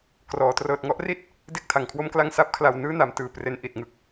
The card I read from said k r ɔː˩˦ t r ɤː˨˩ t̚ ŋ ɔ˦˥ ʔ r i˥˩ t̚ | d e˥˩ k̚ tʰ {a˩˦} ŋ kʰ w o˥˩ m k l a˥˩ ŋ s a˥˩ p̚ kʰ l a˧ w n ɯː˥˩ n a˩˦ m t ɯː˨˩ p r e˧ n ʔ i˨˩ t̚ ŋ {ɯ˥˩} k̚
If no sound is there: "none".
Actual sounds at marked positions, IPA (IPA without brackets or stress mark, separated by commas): a˩˦, ɯ˥˩